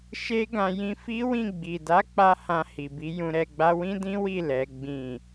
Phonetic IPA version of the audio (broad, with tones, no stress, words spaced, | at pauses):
ʃe˦ɡã˧ jĩ˧fi˦wĩ˦˨ ɡ͡bi˨da˨˦k͡pa˧ hã˧hi˨bi˨˦ jũ˧ɾɛ˧ɡ͡ba˦ wĩ˦dĩ˦wi˦˨ lɛ˨˦ɡ͡bĩ˦˨